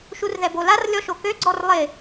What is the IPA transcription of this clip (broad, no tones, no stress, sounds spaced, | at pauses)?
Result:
ʃ u r ð ɛ b o l a r lʲ ɔ ʃ o k ø ɡ͡ǀ ɔ r lˠ ɪ